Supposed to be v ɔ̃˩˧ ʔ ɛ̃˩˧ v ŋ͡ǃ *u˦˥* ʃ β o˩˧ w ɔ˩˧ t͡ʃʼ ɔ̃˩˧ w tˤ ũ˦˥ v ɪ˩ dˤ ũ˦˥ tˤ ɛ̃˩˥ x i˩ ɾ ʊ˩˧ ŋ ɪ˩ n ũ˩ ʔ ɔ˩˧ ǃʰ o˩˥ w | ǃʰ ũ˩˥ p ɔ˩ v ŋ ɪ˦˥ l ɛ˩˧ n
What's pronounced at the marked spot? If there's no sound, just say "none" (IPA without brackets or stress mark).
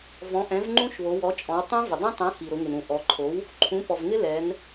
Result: ũ˦˥